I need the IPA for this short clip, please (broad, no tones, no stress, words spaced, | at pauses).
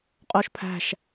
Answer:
qʼoʃpʰæ̤ʃ